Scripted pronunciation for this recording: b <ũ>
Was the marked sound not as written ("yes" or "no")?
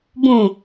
no